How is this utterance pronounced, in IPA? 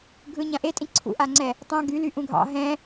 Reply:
ɡʱ ɯ ɲ ã ʔ e tʼ ĩ ǀʰ ṵ ʔ a ŋ͡ǀ ɛ | tˤ ã ɡ y l y ʔ ũ ɡʱ ɑ̰ ɦ ɛ̃

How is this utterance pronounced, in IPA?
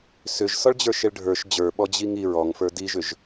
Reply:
s ʏ ʒ s ɔ ɭ d͡ʑ ə˞ ʃ e ɭ ɖʱ ə˞ ʃ d͡ʑ ə˞ ɓ ɔ d͡ʑ i ŋ i ɹ ɔ ŋ f ə˞ d i ʒ ʏ ʒ

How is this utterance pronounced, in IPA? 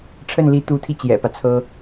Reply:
ʈ͡ʂʰ ə˥˩ n l i˧˥ t̪ u˧˥ t̪ʰ i˧ t͡ɕ j ɛ̰˨˩ p ä˦ t͡sʰ ɤ˥

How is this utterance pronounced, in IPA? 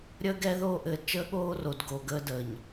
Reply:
ɾʲ əː˦ ɡ ɛ˦ ð oː˦ ʔ ɘː˨ d t͡ʃ əː˦ ɠ oː˦ r o˨ d ɡ o˨ ɡ əː˦ d əː˨ ɲ

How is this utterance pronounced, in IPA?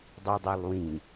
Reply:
dˤ i dˤ o lˠ w ĩ

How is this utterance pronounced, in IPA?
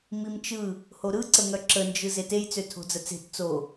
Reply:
m i m t͡ʃ ɯ | h o ɾ ɯ ǀ ə ŋ œ ǁ ə n d͡ʒ ɯ z e t e j t͡s ø tʰ o̤ d͡z ə t͡s e̤ t t͡s o

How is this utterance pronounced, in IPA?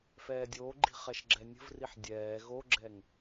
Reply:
f ɛː dʲ oː ɡ͡ǃ i̤ χ ɛ ʃ ɡ͡ǁ ɛ nʲ ə̤ v r i ħ dʲ ɛː ɣ o ɡ͡ǁ ɛ ŋ

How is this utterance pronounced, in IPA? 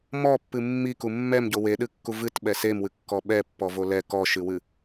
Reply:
m ɔ pː ɨ mː i k u mː ɛ m ɟ o w e ɗ ɨ kː u v ɨ t ɓ ɛ s e m w ɨ kː ɔ ɓ ɛ pː ɔ v o l ɛ k ɔ ʃ ɨ w ɨ

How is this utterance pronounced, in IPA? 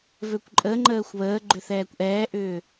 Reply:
v ø kʷ ǃʼ ə ŋ͡ǃ əː xʷ β əː ɡ͡ǃ ʏ θ ɛː kʷ ʔ ɛː ʔ ʏː

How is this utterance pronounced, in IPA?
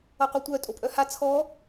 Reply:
ʌ qʷ e tʷ œ tʼ o pʼ œ h a t͡sʰ ɔ

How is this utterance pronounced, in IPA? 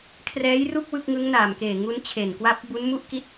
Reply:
kʰ r ɛː˦˥ j r u˥˩ k̚ w ɯ˥˩ k̚ ŋ ɯ˦˥ ŋ n aː˨˩ m k eː˨˩ ŋ u˦˥ n t͡ɕʰ e˨˩ n k w a˦˥ p̚ b u˦˥ n m u˥˩ ʔ k i˥˩ t̚

